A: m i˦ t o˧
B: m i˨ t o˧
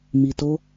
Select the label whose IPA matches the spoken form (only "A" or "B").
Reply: B